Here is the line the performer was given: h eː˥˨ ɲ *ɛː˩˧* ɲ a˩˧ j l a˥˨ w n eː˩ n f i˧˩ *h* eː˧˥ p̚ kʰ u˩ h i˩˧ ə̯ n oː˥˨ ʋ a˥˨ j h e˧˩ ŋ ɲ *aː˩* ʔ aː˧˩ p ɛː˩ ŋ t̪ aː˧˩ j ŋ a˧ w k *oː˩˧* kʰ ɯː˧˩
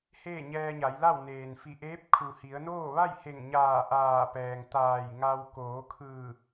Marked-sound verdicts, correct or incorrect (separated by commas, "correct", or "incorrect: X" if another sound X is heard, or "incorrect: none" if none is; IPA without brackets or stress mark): incorrect: ɛː˧, incorrect: ʔ, incorrect: aː˧˩, correct